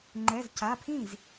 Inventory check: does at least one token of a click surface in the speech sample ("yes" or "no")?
yes